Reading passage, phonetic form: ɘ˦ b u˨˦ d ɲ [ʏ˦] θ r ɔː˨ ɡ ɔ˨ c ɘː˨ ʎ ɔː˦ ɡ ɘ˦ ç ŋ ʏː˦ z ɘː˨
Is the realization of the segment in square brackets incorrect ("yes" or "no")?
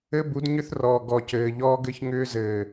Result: no